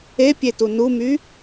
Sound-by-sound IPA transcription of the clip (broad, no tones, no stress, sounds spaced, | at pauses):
e pʲ e t u n u m y